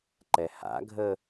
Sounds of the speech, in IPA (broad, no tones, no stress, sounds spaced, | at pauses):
ǃ ɛ h a̰ ɡʱ ə